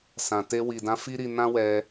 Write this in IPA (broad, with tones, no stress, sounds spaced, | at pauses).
s ã˨ t e˧ w i˨ d ã˧ f i˦ ɾ i˧ n ã˦ w ɛ˧